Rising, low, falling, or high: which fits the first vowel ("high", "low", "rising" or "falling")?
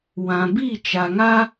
low